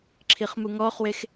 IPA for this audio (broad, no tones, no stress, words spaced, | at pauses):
ǁʰiχmuŋɔχwex